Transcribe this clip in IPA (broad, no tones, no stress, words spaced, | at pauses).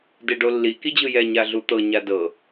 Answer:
deɖolːi kid͡ʑɯjɛ ɲaɮut̪ɤ ɲadɤ